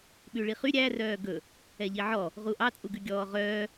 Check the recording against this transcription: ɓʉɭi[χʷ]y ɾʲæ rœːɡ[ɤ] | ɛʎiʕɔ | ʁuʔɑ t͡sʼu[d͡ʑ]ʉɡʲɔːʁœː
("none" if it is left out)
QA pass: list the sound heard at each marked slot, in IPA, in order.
χ, ɵ, ɡ

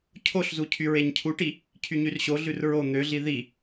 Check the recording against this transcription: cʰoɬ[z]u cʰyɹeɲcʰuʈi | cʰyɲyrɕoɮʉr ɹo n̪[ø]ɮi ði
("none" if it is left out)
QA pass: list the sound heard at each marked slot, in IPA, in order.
z, ø

